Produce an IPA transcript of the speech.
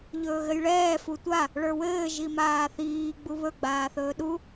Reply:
ʎɵːɣɘjɭɛː futʷa | ɭə˞wɘː ʒimaːθiː ɡ͡buβɵ ɡ͡baːθɵːɗu

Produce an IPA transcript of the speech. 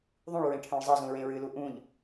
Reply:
ðˤũɭ ɹẽʈʰœ̃ɭzˤʌzũ ɹẽɹɨlu ʔũʎ

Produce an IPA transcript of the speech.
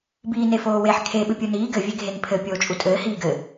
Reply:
biːnefoːweħ kʰe ɓɨpʲuniː ɡɘ vʲeɡʱenpʰɘ pʲoːt͡ʃʼutʼɘː hiːɡɘ

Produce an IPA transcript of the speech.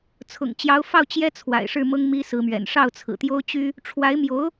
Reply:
t͡sʰʊ̰˨˩ŋt͡ɕjɑ˧˥ʊ̯fɑ˥˩ʊ̯ t͡ɕjɛ˥t͡sʰwa̰˨˩ɪ̯ʂɻ̩˥˩ mɤ˥ŋmi˥sɹ̩˧˥mɥɛ̰˨˩n ʂɑ˥˩ʊ̯t͡sʰɹ̩˨˩t̪jo˥ʊ̯t͡ɕy˥ | ʈ͡ʂʰwa˧˥ɪ̯mjo˧˥ʊ̯

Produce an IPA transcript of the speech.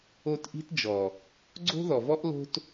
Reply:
o˧t ʔi̤˦td͡ʒɔ˨ | ɡ͡ǀo̤˦ðɔ˨vɔ˦ʔ lo̤˦t

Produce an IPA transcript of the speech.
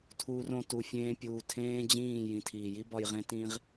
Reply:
tʰuː˧r õ˧ tu˧fʲẽː˦pʲuː˧ tʰẽː˦d͡ʑĩː˦˨ jĩ˨tʰiː˨ji˦bɒ˧j ʁẽ˦ tĩː˦ʁ

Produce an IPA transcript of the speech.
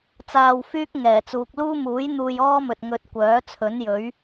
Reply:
t͡saː˧wfyː˥k̚ ŋɛː˨˩t͡suː˨k̚ luː˥ muː˨˥j n̪uː˧jɔː˥mɵ˨t̚ ŋɵ˧t̚kʷœː˨˥t͡sʰɵ˨˥njɵ˨˥ɥ

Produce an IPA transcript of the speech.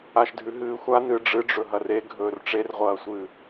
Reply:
aʃdʱʉɦɨːxʷa nɨɖ͡ʐɨɖ͡ʐɵ ɦɐre ɡʱɵːrʈ͡ʂerʁʷɐːsʷɨː

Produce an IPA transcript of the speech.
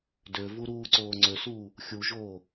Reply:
døvu ɾuːǀoːŋ͡ǀøsuː | xʲuʒoː

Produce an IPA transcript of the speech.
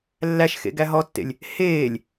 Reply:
lːæʃxḛ ɡæɦɔtːḛlʲ | heːlʲ

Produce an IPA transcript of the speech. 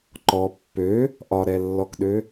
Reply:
ǃɔ pːø | ʔɒɾɛlːɔkɗø

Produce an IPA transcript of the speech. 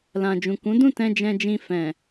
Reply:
lã˨d͡ʒũ˨kũ˨˦dũ˦˨ tɛ̃˧ d͡ʒɛ̃˧d͡ʒĩ˧ fɛ̃˨

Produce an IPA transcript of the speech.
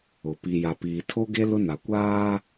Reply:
ʊ˨ pi˨ ja˨piː˨tʰo˦ɡe˦ lʊ˦na˨ kʷaː˦

